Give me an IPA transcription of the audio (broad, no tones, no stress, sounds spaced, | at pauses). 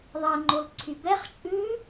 ðˤ ɛ ŋ͡ǃ o l ǀʰ y b ɛ χ t͡ʃʼ ʉ